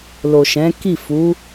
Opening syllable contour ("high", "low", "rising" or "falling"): low